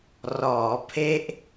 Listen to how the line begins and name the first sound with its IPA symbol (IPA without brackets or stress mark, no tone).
r